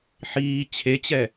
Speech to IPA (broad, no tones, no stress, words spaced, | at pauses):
ħiː t͡ɕʰet͡ɕɛ